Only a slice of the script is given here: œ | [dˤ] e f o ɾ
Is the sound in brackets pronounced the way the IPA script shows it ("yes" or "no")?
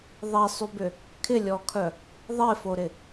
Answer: no